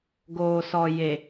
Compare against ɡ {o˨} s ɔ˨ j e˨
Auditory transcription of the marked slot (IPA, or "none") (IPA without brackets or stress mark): oː˨